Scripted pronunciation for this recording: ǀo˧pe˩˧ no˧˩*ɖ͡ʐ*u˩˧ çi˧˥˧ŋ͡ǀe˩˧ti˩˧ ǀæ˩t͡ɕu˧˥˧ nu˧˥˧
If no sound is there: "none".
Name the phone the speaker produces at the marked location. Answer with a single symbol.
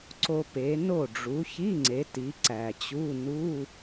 ɖ͡ʐ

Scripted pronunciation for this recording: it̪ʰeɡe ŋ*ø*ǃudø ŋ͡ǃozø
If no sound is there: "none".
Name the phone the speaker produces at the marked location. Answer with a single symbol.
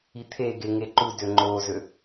e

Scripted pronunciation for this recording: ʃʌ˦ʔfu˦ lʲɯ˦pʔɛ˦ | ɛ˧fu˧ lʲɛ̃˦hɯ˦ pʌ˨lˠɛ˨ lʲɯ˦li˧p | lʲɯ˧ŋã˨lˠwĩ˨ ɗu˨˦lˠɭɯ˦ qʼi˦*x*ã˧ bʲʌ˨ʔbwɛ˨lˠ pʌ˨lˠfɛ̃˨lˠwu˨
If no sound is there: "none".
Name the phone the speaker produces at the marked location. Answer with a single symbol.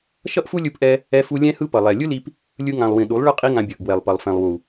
ŋ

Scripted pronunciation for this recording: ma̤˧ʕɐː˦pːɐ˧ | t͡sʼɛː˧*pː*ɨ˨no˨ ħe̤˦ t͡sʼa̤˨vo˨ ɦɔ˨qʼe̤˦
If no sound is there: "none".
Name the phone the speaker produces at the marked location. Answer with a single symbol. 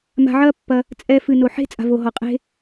f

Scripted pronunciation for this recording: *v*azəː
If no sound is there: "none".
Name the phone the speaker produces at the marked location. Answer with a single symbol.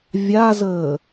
vʲ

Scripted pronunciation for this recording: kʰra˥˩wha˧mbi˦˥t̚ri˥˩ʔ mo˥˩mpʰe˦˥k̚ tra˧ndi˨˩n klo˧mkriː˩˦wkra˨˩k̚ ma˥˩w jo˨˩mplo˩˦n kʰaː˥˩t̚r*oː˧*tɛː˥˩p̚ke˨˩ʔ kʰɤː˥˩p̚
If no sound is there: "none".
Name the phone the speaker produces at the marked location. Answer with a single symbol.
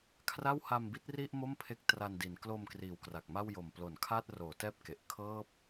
oː˩˦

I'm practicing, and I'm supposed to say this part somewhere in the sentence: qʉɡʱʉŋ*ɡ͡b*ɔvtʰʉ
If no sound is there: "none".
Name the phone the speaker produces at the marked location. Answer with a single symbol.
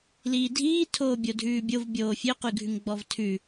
ɡ͡b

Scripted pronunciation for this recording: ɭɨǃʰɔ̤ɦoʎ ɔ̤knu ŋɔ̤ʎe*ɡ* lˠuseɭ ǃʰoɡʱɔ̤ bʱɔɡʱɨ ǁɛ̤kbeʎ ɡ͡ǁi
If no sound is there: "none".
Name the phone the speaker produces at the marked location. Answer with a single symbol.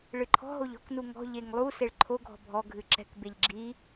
ŋ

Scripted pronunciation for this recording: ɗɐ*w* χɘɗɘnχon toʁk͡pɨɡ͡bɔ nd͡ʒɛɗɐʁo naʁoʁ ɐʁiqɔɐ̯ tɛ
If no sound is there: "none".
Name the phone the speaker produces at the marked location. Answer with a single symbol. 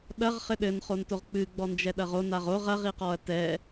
ʁ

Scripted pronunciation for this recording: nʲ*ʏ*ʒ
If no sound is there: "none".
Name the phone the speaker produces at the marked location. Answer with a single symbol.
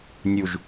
u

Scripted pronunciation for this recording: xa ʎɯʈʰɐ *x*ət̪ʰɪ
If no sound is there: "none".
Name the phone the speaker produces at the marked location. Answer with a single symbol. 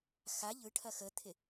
x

